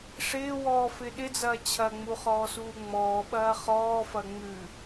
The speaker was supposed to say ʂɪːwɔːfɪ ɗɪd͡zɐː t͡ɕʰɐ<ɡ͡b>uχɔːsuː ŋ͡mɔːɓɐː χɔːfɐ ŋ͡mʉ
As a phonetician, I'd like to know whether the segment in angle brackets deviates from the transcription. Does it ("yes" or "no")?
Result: yes